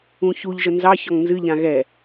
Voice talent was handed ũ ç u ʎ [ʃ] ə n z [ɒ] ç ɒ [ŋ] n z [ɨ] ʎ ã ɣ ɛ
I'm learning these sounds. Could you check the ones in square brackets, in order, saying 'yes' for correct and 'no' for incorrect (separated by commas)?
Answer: no, no, yes, yes